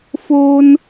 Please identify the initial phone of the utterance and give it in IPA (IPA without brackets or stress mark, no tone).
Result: f